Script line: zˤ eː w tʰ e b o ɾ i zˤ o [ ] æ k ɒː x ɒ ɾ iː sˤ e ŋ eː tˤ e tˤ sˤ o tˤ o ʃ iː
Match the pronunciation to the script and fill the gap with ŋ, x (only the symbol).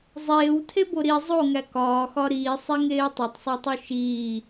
ŋ